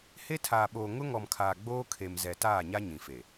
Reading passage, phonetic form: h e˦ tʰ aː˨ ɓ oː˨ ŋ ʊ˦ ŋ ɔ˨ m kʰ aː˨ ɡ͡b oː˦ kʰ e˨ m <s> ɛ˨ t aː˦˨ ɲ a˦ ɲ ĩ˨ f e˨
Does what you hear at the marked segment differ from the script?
yes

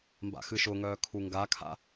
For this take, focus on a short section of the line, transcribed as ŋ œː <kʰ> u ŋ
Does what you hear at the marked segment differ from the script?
no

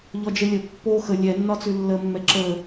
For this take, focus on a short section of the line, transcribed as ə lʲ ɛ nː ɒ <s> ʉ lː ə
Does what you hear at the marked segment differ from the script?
yes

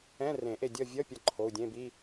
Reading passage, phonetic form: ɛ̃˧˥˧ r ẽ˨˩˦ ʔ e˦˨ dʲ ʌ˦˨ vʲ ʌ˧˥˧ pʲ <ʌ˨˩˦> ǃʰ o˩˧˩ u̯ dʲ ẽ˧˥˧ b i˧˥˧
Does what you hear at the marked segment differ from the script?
yes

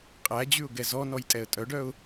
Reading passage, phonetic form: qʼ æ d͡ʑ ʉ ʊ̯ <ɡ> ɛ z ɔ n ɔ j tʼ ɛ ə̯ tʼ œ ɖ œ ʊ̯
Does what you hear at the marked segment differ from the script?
no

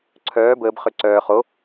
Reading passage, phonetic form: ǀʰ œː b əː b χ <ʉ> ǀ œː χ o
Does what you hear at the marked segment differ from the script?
yes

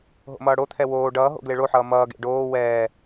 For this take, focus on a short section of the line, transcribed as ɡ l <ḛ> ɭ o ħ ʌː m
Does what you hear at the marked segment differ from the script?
yes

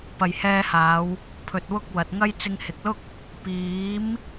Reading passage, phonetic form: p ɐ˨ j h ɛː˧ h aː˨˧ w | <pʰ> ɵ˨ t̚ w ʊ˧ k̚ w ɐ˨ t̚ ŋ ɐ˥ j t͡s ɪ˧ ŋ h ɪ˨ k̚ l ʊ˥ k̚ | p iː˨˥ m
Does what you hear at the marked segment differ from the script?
no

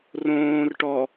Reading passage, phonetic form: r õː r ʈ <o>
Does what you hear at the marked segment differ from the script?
yes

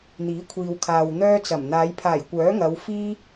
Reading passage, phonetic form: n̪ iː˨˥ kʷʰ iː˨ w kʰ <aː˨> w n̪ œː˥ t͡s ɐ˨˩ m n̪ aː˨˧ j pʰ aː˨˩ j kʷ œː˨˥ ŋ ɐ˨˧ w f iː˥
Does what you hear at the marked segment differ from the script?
no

